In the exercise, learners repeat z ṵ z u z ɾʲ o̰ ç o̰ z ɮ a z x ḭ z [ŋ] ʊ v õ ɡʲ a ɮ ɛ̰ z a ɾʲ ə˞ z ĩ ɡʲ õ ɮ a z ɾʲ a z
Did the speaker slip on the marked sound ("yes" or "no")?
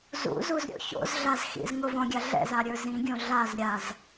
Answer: no